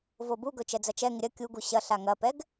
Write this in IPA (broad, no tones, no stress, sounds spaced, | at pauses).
v o b u ɡ ɵ t͡ʃ ɛ d͡z ɐ t͡ʃ ɛ ŋ ɪ ɾʲ ɐ kʲ u ɡ u ɕ ɐ ɬ a ŋ ɐ p ɛ ɡ